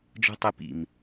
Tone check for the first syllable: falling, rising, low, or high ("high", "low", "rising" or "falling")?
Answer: high